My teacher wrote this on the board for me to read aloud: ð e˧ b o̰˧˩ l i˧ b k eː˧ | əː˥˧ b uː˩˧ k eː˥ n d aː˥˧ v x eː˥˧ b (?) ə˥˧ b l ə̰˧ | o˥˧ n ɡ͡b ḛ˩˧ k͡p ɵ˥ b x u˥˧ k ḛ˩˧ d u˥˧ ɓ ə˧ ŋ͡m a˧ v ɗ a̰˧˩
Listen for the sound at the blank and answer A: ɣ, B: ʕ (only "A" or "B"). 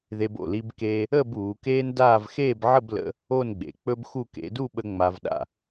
B